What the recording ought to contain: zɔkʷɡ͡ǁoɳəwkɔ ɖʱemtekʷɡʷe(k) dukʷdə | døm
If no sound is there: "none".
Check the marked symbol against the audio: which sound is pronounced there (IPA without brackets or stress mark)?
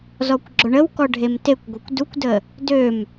kʷ